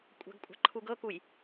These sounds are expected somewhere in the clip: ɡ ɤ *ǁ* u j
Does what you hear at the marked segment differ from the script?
yes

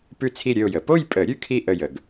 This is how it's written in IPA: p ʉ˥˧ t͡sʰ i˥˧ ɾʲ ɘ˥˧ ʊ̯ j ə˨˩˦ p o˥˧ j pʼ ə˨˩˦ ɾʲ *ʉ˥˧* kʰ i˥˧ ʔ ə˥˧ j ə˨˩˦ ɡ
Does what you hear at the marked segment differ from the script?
no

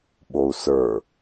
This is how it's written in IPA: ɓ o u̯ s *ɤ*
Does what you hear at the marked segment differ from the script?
yes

